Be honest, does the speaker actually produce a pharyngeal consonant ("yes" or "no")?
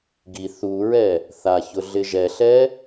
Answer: no